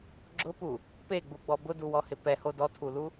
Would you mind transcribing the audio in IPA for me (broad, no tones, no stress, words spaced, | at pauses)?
ɡ͡ǁʊpu | peɡ͡buɡ͡bɔ bʊduwɔhɪ pɛho dɔtʰulu